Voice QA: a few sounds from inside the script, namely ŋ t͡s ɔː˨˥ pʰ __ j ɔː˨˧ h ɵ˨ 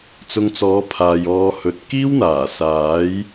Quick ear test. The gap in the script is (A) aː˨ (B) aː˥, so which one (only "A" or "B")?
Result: A